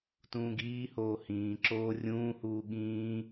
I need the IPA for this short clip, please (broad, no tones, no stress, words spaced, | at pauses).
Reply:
tũːɡiːhoː hĩːǁoː rʲũːhuː ɠĩː